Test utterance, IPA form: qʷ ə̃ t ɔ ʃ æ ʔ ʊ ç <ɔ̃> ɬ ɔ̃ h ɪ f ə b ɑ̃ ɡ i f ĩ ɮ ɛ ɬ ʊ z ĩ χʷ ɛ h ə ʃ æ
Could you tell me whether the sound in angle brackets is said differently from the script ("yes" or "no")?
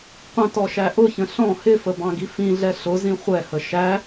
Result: yes